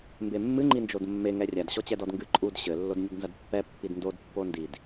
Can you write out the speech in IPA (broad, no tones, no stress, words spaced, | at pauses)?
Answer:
mbemːɨ ŋ͡ǃind͡ʒodmːe ŋɛrʲad ɕɔt͡ɕɛdɔdŋɡɨ ǃʼud ɕɘ lːodnʲɐdnzɐdpːɛ pːidndod pːondid